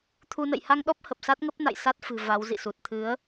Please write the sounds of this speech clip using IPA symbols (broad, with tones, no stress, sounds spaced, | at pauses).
t̪ʰ u˧ n ə̰˧˨ j h a˧ ŋ ɗ ɔ˦˥ p̚ h ə˨˩ p̚ s a˦˥ t̚ ŋ ə˦˥ p̚ n a̰˧˨ j s a˦˥ t̚ f ɨ̤˨˩ v a˨˦ w z ḭ˧˨ s u˨˩ t̚ t̪ʰ ɨ˨˦ ə̯